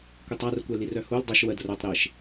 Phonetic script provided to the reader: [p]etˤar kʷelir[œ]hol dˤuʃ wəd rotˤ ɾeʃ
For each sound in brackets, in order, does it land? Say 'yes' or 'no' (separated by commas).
no, yes